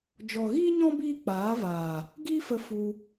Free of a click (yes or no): yes